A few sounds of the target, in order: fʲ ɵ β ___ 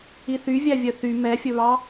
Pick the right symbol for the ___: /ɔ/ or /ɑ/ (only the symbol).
ɑ